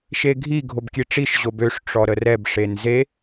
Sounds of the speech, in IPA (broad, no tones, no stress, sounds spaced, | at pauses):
ʃ e ɡʱ i ɡʱ o b kʲ e ʈ͡ʂ i ʃ ʑ o b ø ʂ ʈ͡ʂ ɔ ɾ ə r ɛ b ʂ e n z e